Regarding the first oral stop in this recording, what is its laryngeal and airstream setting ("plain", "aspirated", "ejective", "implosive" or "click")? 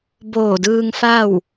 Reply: plain